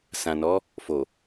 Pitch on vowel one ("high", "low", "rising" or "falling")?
low